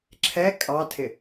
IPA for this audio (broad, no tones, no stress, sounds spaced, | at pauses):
ǁʰ ɛ kʼ ɑ tʰ ɪ